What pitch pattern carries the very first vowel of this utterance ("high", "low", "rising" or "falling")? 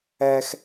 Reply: high